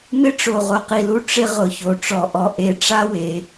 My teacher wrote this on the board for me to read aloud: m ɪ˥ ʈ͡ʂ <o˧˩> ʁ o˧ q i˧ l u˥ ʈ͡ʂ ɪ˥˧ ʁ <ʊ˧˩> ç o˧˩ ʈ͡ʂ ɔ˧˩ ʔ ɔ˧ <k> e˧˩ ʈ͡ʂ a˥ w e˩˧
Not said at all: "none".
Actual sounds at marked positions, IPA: o˧˩, ʊ˧˩, ʔ

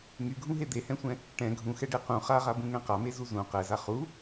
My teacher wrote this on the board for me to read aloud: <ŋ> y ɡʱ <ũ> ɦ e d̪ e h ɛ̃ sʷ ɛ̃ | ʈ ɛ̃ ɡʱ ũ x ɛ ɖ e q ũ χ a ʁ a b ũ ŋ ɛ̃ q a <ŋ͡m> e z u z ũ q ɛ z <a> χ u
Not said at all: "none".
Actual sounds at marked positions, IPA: ŋ, ũ, m, a

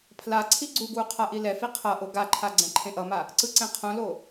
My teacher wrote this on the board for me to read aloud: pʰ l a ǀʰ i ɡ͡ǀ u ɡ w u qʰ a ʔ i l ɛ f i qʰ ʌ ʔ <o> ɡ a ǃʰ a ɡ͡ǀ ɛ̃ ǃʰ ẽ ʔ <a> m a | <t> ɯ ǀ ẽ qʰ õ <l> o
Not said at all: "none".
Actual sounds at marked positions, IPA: o, ʌ, ǀ, l

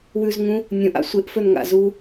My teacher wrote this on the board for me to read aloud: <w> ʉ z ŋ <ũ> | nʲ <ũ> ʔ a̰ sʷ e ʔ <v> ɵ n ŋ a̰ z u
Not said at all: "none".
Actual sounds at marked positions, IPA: w, ũ, õ, f

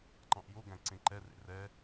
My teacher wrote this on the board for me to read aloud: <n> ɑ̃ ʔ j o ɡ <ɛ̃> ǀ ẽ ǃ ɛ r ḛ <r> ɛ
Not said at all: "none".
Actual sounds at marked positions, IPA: ǃ, æ̃, r

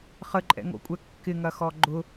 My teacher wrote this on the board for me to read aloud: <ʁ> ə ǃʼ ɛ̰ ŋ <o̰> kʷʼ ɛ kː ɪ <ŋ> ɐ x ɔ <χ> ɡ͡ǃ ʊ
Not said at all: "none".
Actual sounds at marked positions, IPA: χ, o̰, ŋ, none

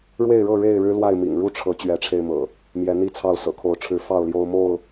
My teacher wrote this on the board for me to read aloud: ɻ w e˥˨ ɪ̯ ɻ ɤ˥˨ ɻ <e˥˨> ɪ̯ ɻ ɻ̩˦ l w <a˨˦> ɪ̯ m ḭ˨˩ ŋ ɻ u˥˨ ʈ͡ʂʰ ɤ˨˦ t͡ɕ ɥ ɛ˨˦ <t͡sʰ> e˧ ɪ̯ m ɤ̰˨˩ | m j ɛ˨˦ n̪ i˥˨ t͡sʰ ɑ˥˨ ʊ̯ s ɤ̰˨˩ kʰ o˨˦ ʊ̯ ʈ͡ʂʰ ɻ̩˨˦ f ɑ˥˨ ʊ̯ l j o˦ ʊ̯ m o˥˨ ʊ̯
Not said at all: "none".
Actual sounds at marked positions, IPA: e˥˨, a˥˨, ʈ͡ʂʰ

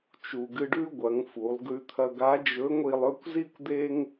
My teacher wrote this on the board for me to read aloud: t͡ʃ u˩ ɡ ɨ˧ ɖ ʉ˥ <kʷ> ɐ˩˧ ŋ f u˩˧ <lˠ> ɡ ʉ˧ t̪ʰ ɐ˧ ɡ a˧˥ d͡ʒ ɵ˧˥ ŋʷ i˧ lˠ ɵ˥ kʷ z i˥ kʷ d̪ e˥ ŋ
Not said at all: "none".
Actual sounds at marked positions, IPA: ɡʷ, lˠ

